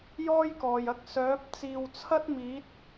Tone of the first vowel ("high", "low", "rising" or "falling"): high